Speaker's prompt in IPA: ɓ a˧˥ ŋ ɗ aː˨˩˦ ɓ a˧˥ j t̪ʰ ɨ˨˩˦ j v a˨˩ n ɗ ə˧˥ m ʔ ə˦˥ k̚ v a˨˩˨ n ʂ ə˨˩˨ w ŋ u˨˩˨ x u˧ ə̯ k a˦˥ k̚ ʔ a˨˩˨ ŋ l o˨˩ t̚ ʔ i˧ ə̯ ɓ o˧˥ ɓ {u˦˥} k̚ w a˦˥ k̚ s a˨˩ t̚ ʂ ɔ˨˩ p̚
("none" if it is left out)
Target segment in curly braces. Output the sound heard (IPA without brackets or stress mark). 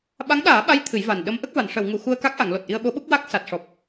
u˦˥